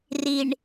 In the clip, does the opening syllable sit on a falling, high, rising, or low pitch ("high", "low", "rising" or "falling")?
low